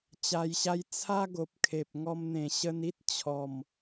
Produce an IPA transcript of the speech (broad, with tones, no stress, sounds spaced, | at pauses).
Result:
t͡ɕ a˧ j ɕ a˦ j t͡sʰ a˦ ɡ o˨ p̚ kʰ e˨ p̚ ŋ ɔ˧ m n̪ ẽ˨˩ ɕ ə˧ n i˦ t̚ t͡ɕʰ ɔ˨˩ m